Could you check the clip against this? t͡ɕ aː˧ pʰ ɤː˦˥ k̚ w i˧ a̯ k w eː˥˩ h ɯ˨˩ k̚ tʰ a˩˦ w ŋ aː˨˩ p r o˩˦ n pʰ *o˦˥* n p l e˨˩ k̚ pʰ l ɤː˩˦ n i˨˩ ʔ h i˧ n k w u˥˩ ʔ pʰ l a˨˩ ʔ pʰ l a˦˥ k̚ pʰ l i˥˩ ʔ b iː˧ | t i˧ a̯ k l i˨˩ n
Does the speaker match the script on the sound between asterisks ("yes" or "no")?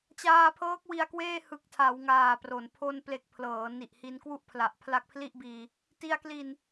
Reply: no